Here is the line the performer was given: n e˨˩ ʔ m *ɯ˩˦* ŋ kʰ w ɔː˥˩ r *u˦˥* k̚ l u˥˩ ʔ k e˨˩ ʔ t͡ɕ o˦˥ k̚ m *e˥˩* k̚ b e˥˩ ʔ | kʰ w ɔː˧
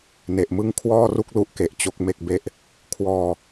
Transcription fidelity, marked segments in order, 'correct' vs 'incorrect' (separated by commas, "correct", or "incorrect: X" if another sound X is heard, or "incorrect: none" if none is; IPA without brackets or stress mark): incorrect: ɯ˥˩, incorrect: u˥˩, correct